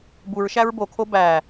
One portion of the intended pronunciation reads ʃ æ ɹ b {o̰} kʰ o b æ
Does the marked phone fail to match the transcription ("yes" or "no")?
yes